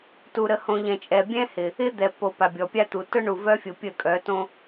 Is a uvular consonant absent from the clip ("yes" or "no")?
yes